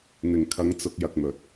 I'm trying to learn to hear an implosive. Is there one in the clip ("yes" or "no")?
no